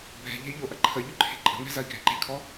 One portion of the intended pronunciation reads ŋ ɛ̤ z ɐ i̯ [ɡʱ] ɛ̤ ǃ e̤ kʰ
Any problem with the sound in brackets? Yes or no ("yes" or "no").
no